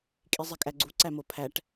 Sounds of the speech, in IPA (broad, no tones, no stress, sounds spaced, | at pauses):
kʼ i zˤ e kʼ æ ɡ͡ǀ u ǀ æ m o pʰ æ ʈ